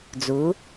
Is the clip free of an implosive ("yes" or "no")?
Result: yes